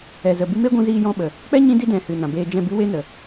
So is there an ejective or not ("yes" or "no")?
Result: no